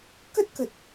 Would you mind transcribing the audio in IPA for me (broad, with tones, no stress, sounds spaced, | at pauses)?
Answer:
k ə˦˥ t̚ k ə˨˩ t̚